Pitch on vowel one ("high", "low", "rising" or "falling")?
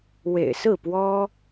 low